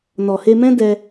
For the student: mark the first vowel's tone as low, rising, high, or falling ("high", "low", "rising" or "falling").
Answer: low